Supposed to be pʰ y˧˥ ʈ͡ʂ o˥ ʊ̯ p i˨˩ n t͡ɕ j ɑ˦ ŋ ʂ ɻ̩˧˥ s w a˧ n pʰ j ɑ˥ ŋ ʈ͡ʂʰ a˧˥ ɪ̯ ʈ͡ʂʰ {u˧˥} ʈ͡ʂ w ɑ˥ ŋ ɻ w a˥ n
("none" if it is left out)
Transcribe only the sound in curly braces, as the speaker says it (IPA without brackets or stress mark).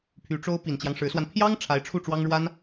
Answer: u˥˩